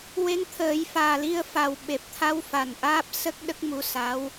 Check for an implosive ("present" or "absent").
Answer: present